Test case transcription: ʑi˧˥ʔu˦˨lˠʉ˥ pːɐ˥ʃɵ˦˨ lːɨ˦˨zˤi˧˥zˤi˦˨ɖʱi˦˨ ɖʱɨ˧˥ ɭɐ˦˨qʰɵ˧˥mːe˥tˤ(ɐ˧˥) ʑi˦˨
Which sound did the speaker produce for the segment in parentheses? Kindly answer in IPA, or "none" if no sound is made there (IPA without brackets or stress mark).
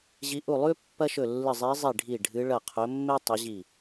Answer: ɐ˧˥